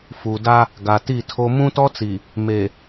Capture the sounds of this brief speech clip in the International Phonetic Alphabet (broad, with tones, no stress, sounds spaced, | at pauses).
f u˨ d a˦ | ɡ a˨ t i˦˨ tʰ o˦ m ũ˦ t ɔ˦ t͡s i˨ | m e˨